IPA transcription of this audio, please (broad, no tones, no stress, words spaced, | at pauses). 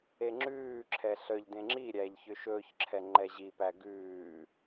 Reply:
eŋ͡ǁʉːǁʰɛ ɬœʎ dẽŋ͡ǁiɾʲæːʎ çøʃɵːçǁʰɛ ŋ͡ǃɛʑipæ ɡʉː